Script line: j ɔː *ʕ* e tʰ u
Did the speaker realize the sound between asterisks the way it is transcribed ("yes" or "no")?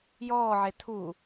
yes